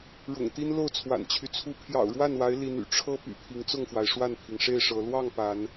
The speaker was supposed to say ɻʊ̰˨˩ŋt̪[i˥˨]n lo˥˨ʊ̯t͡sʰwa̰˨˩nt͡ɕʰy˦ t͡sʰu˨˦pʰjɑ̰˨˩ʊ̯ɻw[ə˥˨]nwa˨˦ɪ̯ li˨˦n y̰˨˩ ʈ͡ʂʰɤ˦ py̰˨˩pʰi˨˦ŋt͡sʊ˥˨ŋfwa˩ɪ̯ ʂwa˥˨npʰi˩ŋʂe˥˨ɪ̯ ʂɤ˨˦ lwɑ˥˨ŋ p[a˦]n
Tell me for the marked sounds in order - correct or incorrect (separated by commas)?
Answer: incorrect, incorrect, incorrect